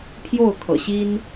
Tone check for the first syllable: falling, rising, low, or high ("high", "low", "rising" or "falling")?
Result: falling